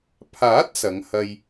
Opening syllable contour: rising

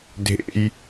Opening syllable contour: high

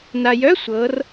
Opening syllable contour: low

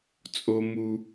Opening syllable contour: high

